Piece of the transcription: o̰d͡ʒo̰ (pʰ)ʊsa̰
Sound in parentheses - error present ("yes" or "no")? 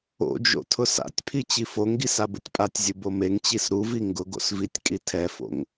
yes